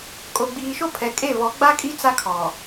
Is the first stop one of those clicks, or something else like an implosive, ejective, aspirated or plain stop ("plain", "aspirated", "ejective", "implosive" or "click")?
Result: ejective